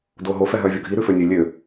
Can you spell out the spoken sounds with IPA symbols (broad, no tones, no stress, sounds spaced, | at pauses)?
d oː ɦ o f ɛ ɦ œː vʲ ɔ ɡʱ i ɾ ʉ f ø nʲ ø lʲ ø